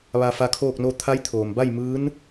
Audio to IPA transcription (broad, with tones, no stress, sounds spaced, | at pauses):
ʋ a˧ f a˧ kʰ oː˥˨ k̚ n o˥˨ t̪ʰ a˧˥ j t̪ʰ oː˩ m b a˥˨ j m ɯː˧˥ n